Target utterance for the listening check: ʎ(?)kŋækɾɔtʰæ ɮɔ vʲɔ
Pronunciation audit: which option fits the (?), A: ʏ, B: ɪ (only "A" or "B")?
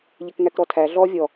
B